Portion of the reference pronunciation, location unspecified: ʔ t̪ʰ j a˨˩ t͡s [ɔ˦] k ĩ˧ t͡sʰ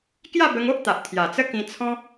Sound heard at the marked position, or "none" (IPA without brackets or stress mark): ə˦